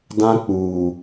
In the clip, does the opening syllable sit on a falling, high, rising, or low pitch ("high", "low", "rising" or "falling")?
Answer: high